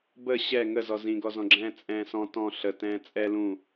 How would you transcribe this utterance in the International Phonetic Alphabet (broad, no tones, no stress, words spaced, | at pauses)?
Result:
bə ɕɛ ŋəzɔ zĩɡɔzɔ̃ɡ͡ǁɛ̃ː t͡sʼɛ̃ːsɔ̃ tɔ̃ ɬə tɛ̃ːt͡sʼɛ lũ